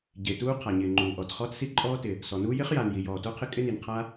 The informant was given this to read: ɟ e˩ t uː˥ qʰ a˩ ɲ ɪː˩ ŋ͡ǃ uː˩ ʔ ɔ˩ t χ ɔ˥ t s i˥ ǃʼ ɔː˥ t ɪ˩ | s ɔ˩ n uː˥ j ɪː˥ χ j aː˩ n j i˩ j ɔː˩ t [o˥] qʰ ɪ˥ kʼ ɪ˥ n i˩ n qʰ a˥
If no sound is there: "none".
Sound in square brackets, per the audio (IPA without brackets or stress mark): o˥